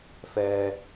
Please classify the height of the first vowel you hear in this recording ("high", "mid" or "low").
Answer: mid